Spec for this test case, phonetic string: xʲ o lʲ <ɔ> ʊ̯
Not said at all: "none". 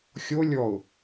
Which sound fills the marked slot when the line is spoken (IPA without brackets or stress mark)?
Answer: ɔ